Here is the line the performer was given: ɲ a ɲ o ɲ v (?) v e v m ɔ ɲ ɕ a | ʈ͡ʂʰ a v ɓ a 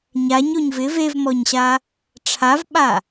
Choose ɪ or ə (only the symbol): ɪ